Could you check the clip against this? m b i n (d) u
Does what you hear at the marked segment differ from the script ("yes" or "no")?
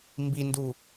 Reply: no